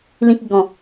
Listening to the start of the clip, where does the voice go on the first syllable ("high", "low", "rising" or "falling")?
low